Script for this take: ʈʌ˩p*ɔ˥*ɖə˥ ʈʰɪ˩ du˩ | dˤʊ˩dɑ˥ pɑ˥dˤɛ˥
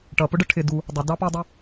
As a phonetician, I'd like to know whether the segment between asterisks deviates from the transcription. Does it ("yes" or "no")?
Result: yes